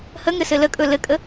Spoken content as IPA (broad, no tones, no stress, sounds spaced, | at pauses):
h ə ŋ ɘ s ɘ l ə kʼ ɵ l ɘ kʼ ə